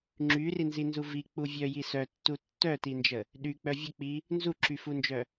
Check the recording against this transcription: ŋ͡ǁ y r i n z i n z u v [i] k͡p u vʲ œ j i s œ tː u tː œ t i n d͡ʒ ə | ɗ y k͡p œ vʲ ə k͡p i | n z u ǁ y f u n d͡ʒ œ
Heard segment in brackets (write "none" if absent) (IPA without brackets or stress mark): i